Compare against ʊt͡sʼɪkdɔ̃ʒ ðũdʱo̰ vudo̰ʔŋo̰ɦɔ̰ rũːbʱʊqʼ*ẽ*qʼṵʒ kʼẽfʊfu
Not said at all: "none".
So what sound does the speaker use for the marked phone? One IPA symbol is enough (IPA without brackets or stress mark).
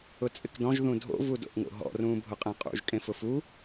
ẽ